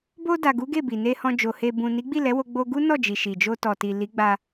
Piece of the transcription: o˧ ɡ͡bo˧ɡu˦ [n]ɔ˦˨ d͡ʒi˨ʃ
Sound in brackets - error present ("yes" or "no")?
no